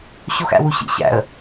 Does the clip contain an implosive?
no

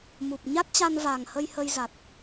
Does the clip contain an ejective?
no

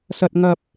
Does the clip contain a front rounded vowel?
no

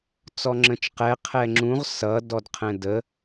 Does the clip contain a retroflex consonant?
no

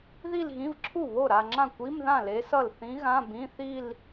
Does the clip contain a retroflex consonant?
no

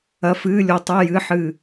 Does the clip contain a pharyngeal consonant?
yes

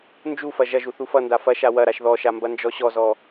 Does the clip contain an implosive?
no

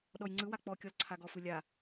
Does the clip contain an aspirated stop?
yes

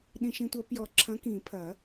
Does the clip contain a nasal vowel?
yes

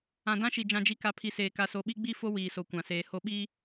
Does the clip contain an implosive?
yes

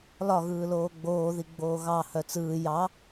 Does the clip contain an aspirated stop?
no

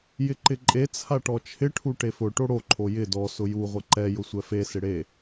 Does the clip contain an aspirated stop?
yes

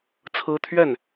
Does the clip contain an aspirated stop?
yes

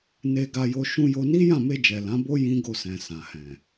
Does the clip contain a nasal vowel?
yes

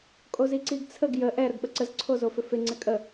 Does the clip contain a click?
yes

